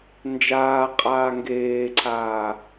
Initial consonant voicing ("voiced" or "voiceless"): voiced